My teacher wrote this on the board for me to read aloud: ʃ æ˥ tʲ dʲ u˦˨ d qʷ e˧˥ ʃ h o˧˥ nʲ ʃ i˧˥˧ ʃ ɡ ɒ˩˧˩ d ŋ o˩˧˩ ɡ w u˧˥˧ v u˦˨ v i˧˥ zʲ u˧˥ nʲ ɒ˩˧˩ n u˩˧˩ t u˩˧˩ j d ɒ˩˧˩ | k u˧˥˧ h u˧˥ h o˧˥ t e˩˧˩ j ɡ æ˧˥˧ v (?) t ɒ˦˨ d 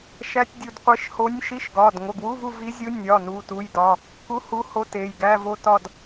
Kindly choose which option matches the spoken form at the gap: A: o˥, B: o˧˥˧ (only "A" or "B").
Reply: A